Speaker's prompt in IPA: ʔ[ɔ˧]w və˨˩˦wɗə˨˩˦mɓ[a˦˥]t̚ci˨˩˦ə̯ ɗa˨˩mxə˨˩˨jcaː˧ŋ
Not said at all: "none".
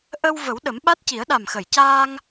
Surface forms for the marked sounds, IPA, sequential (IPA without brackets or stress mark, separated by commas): ə˧, a˦˥